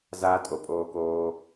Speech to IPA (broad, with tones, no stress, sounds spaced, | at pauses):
z aː˧ tʼ o˨ pʼ oː˧ k oː˧